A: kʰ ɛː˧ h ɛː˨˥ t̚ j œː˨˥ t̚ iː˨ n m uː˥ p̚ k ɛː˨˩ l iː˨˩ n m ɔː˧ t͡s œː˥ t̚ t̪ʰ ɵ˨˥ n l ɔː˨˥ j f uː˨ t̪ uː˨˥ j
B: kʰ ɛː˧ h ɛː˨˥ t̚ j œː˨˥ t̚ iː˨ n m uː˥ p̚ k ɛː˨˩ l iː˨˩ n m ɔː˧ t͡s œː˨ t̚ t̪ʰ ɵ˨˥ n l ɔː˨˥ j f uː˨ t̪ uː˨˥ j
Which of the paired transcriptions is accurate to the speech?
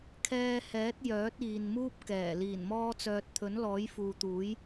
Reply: B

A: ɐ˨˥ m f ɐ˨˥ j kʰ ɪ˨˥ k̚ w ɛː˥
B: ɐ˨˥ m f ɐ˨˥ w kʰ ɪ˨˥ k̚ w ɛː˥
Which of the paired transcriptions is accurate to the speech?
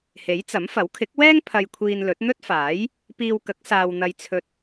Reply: B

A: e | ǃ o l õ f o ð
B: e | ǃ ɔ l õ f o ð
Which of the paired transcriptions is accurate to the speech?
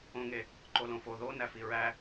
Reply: A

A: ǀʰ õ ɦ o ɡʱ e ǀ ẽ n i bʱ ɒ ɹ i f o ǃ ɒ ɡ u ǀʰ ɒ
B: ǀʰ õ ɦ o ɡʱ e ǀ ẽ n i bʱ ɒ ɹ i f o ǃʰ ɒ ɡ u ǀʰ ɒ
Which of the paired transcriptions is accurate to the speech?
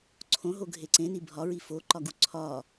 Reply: A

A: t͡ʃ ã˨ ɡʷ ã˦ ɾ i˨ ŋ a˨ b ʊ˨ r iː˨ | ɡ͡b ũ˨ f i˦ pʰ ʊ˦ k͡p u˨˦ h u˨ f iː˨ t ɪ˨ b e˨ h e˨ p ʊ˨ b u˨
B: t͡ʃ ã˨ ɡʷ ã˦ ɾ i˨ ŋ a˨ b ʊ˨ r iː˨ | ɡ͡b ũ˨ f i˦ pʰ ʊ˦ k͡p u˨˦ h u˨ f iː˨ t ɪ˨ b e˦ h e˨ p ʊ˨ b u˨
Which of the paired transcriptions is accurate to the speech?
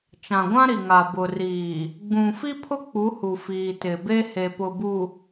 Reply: B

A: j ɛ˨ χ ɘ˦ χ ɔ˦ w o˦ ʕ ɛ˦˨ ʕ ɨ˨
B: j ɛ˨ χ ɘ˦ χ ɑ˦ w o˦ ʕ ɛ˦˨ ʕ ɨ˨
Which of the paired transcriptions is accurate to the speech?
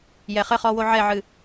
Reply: A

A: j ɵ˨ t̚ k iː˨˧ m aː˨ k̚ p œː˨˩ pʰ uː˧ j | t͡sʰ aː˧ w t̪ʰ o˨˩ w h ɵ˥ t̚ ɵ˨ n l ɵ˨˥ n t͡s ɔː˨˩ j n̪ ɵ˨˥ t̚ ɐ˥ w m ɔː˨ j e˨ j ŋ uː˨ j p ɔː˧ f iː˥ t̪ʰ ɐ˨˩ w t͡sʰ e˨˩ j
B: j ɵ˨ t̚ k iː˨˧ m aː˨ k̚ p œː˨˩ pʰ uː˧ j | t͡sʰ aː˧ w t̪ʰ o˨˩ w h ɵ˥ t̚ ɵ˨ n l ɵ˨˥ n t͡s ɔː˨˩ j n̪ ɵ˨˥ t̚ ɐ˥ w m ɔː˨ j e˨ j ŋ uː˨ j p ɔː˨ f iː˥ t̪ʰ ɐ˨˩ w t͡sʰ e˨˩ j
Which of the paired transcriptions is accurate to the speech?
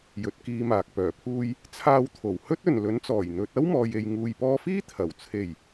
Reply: A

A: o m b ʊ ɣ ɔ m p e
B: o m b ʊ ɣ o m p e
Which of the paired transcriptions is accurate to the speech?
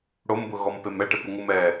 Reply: A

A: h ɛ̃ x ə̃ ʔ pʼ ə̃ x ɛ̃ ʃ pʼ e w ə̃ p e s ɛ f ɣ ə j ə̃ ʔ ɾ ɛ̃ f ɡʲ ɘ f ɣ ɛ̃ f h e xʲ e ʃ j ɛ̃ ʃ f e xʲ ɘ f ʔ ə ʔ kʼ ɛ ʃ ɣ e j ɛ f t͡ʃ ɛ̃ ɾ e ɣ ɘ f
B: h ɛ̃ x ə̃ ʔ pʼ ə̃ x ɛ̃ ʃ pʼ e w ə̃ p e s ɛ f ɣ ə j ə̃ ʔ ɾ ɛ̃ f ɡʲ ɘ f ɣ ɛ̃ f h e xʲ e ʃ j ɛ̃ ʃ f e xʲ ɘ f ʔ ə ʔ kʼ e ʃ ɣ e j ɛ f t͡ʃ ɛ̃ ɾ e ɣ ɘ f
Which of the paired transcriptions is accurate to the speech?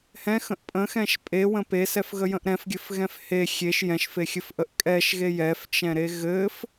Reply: A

